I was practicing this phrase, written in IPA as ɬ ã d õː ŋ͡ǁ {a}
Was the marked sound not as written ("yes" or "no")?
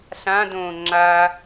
no